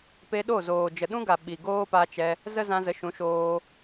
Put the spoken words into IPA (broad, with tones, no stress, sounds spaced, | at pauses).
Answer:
p e˧ ɗ o˦˨ z oː˨ d͡ʒ ə˨ ɗ ũ˦ ɡ a˨ ɓ i˨ ɡ oː˦ p a˧ t͡ʃ ɛ˧ | z ə˦ z ã˧ z ə˨˦ ʃ ũ˨˦ ʃ oː˧